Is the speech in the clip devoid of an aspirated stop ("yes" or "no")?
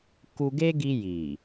yes